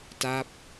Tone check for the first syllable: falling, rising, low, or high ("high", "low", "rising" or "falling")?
falling